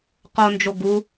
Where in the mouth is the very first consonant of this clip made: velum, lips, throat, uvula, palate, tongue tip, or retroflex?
uvula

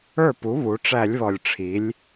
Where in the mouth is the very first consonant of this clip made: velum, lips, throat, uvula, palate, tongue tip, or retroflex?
lips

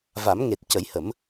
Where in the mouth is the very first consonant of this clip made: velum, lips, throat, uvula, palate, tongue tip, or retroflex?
lips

